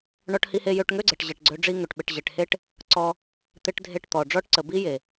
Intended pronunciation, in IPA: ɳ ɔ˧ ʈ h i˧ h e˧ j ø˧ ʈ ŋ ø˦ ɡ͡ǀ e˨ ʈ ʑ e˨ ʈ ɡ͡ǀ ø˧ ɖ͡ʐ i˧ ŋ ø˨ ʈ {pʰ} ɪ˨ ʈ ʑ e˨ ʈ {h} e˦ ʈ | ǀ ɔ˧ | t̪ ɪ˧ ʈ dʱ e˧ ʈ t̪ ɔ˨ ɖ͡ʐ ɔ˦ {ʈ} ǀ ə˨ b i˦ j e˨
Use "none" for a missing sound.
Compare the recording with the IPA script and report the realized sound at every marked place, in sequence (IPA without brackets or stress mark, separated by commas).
ɓ, h, ʈ